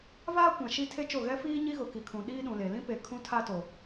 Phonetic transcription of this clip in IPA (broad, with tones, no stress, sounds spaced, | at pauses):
v aː˦ kʷ ã˨ ʃ i˦ tʰ e˦ t͡ʃ o˦˨ ɣ ɛ˦ f iː˦ ɲ i˦ ɣ ʊ˨ k i˨ kʰ ũ˨ ɗ iː˦ ɗ ũ˨ l e˨ l ĩ˦ p e˨ kʰ ũ˦ tʰ a˦ t o˨